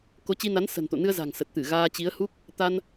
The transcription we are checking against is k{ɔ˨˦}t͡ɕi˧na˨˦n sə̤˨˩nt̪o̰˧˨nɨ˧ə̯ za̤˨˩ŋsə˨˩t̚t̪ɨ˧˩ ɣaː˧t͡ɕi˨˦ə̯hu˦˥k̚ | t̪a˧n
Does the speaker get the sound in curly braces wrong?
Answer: yes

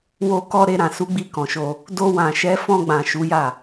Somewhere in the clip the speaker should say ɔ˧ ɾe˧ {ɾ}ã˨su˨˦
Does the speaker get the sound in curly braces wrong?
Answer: no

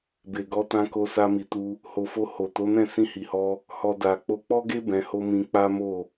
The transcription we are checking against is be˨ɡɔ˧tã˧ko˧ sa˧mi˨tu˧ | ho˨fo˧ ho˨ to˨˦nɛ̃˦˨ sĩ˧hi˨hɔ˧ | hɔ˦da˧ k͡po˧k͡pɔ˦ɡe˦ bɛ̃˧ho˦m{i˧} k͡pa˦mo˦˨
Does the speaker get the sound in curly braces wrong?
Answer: yes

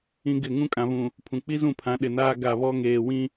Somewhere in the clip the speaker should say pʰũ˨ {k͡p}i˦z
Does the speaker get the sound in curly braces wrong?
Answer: no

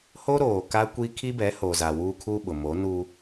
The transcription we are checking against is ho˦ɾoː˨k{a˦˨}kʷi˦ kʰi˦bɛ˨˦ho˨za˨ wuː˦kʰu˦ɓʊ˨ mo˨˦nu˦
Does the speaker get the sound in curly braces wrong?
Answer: yes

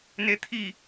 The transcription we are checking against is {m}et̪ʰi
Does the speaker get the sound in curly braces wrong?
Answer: yes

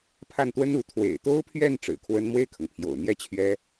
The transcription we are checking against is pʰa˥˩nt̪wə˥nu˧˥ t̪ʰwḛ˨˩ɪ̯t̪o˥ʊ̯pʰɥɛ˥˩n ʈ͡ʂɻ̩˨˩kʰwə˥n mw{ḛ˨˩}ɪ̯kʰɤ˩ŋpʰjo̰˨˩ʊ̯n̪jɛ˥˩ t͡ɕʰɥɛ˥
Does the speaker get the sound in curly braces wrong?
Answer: yes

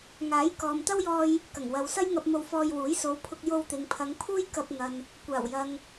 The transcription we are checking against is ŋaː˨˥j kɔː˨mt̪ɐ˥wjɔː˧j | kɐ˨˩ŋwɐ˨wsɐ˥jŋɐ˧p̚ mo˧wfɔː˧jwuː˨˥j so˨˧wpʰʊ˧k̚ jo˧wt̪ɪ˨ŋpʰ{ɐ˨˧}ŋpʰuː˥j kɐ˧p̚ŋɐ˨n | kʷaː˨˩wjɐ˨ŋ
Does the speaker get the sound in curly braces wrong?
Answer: no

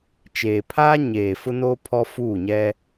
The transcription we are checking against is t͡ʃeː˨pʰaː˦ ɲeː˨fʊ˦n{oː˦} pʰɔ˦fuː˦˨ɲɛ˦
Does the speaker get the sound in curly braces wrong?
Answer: no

